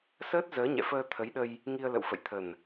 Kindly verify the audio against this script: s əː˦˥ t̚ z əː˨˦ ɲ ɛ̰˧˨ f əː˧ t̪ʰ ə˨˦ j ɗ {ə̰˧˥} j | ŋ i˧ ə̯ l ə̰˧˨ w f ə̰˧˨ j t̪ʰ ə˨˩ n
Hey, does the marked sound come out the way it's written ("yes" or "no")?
no